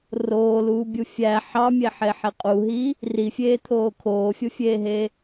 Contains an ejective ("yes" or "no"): yes